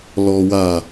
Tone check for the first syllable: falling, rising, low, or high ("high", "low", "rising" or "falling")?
low